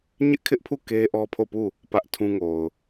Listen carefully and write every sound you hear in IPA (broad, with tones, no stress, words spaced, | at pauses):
ɲɪ˦ʔkʰɪ˦ʔpʰu˦˨ ke˦ʔɔ˦pʰo˦˨pu˦˨ | pä˦ʔtʰũ˦ŋo˨ʊ̯